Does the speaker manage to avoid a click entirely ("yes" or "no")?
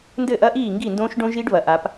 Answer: yes